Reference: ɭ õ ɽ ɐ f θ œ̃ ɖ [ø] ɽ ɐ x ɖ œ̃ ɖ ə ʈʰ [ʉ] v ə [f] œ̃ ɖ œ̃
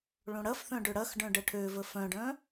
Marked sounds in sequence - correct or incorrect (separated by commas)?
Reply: correct, incorrect, correct